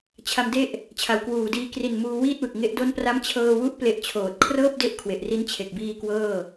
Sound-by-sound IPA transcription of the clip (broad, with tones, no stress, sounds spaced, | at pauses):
t͡ɕʰ a˧ m d e˥˩ ʔ | t͡ɕʰ a˨˩ w k w uː˨˩ d iː˧ k r i˨˩ n m uː˧ w iː˥˩ t̚ w ɯ˨˩ k̚ ŋ e˦˥ ʔ d o˦˥ n p r a˦˥ m t͡ɕʰ ɤː˧ w u˦˥ ʔ p l e˦˥ ʔ t͡ɕʰ oː˨˩ t̚ kʰ r ɤː˥˩ p̚ d e˦˥ ʔ kʰ w e˨˩ ʔ r i˦˥ n t͡ɕʰ e˨˩ k̚ b iː˧ k w ɤː˥˩